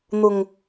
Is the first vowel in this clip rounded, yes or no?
yes